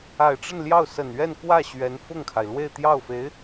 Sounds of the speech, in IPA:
a˨˩ ɪ̯ ʈ͡ʂ ə˥˧ n l j ɑ˥˩ ʊ̯ s ə˨˩ n ɥ ɛ˥˧ n k w ä˥˩ ɕ ɥ ɛ˧˥ n f ʊ˥˩ ŋ kʰ a˩ ɪ̯ l w e˥˧ ɪ̯ t̪ j ɑ˥˩ ʊ̯ f e˧˥ ɪ̯

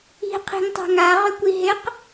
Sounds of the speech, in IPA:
i̤ qʰ i̤ ŋ tˤ a̤ ŋ a ʁ ʏ kʷ i ɦ ɪ q

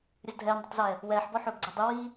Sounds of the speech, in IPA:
ɾʲ ɵ z dʱ ɛː n dˤ ɵ tˤ z ɛː | w ɛː ħ b ɔ ħ ɵː b ɡ͡ǀ ɛ dˤ y w iː

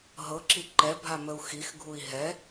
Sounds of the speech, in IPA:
ɦ ɤ ǁ i ǃ ɛ bʱ a m ə u̯ x i x ɡʱ u i̯ ɦ ɛ

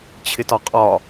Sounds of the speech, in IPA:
t͡ɕʰ ɪ t ɒ qʼ ɒ

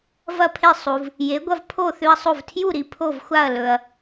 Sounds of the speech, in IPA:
v ɐ˥˨ pʰ e˥˨ sˤ u˨ v | j e˨˥ ɡʷ ɐ˦ v pʰ o˥˨ θ ʉ˦ ɐ̯ sˤ o˥˨ v tʰ j u˥˨ ɾ i˨ pʰ o˥˨ v xʷ a˥˨ ɐ̯ l ɵ˨ ɐ̯

